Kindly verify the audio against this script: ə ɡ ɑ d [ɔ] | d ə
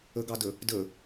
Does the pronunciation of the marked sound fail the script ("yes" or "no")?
yes